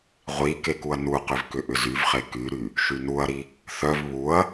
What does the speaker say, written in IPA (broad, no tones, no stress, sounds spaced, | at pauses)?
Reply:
ʁʷ i k e k u ɐ̯ n u q ʏ v k ʏ ʔ ʏ z y v χ e k y ɾ y | ʃ y n u ɐ̯ ɾ i | θ œ v β u ɐ̯